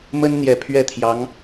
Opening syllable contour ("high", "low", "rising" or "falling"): high